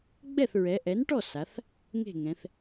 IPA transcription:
ɡ͡bɛ˥˩θɹɛ˩˧ ʔɛ˩˥nʈɔ˥˩ sa˩˧θ | ŋe̤˥˩ŋɛ̃˩˧θ

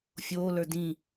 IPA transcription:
fʲoːlə˞ dĩ

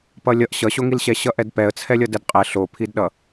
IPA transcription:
pʌlʲʌʔ ɕʌɕoŋilɕɛ ɕʌʔɛdpɛə̯t͡sʰɛ lʲʌdɛdqʼɛ ɬopʰidɗʌ

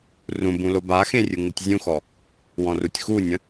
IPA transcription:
rũbũ lobaxẽ rʲɯŋɯtʲzʲũxɔ | wɔ̃rutʲxunʲə̃

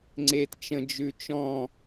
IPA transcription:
ŋ͡ǀet t͡ʃə̃d͡ʒʉ t͡ʃɔ̃

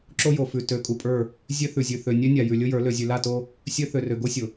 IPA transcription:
ǁo˦ jo˨ fʉ˨ tø˨˦kʼu˨pʼə˞˦˨ | zʲø˦θʉ˨zʲʉ˨ θø˨ nʲø˦nʲa˨ jʉ˨lʲʊ˦jə˞˨˦ lø˨zʲʉ˨la˦˨to˦ | sʲø˦ θø˨rø˨ ɡo˦sʲʊ˨

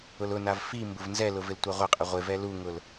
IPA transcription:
ʊlʊnav fi mbʊvnzɛlʊ vɪltʷaʁʷɪqʼɪ ʁʷɪvɛ luŋʊl

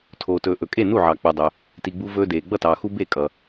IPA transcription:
tʰoː˩tɵː˩ ʔɵ˩kʼe˥˩ nu˥˩ʕɑ˩k͡pu˩dˤɵ˩ | ti˩ɡ͡bu˧ vɵː˧deː˩ ɡ͡bʌ˥˩tɑː˩ xu˧ be˥˩ kʼʌ˩

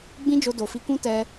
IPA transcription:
ɡ͡bĩ˦d͡ʒo˧do˨fi˧ kũ˦ tɛ˦

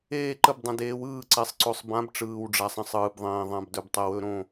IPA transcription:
eː˥˨ ǃə˥˨bdˤə̃˨˦deː˨˦w ɯː˥˨ǀɛ˨˦sˤǀo˨˦sˤ bã˨˦b ʈ͡ʂɯː˨wɖ͡ʐa˨sˤə̃˥˨sˤ ɯː˨bðˤẽː˨ ðˤã˨bdɵ˨btˤɛ˨wɵ˥˨ ɾõ˥˨

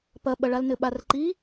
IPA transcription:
pɐɓɐɭal nɘɓarǃi

